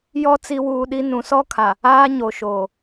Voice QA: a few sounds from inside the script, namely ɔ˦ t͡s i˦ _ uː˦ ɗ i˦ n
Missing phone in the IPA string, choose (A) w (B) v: A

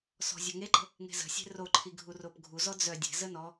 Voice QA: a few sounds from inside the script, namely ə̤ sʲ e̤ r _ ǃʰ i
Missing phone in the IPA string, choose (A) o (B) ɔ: A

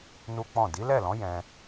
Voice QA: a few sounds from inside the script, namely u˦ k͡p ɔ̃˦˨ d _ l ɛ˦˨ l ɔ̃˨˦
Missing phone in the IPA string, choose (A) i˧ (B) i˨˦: B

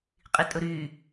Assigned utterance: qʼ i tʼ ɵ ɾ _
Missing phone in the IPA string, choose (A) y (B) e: A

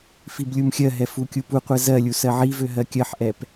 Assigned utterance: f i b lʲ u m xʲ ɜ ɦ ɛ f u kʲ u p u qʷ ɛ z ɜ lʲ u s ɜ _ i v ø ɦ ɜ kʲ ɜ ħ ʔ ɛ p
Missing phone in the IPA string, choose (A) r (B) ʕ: B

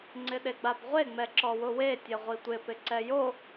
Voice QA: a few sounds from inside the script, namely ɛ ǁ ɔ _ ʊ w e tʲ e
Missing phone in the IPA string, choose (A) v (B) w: B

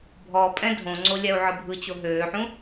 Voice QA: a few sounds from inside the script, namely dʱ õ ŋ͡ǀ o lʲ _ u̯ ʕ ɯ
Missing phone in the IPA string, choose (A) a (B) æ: A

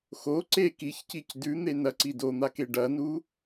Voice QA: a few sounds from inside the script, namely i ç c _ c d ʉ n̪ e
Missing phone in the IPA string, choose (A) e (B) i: B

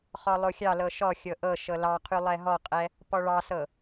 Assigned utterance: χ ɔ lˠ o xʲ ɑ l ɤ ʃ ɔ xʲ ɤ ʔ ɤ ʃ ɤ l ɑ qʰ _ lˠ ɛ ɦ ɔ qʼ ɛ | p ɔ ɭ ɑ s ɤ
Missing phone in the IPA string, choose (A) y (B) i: A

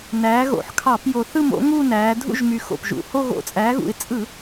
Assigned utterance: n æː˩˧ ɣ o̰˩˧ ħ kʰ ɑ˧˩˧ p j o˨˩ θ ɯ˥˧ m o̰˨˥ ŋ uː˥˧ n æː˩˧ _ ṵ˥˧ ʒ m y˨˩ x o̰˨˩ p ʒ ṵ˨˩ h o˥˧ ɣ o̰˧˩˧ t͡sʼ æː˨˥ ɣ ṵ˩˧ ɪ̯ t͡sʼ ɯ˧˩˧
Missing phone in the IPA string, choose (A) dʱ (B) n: A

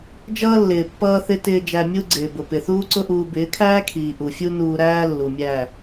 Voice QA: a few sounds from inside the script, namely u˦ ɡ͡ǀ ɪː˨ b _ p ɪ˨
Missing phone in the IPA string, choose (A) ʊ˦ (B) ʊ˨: B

